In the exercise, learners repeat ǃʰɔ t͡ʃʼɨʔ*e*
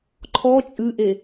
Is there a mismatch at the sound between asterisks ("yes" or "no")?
no